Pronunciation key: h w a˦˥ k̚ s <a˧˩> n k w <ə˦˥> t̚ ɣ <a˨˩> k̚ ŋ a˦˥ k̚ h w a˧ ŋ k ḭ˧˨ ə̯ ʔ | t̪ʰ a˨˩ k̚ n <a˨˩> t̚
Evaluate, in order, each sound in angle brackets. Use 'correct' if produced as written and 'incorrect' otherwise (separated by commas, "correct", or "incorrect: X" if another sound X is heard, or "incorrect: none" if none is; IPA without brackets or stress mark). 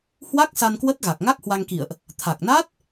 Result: incorrect: a˧, correct, correct, incorrect: a˦˥